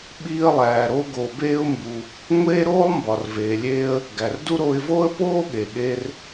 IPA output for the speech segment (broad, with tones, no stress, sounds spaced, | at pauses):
ɓ iː˧ ə̯ lˠ æː˩ ɾ o˧ ɡ o˩ b eː˧ ʊ̯ m b u˩ | ŋʷ eː˥ ɾ oː˥ lˠ m b ɒ˩ r v eː˩ lʲ eː˧ ə̯ | ɡ æ˩ r d u˥ ɾ oː˧ ɪ̯ v oː˥ ə̯ p oː˥ ɠ e˩ ɠ e˧ r